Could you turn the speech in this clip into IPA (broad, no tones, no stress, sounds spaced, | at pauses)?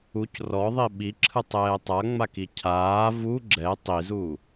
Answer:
u c r ɔ ðˤ i ɓ i ǁʰ ɯ tˤ ɛː tˤ a ŋ͡m a k i cʰ aː v u ɡ͡ǁ ɛ tˤ i z u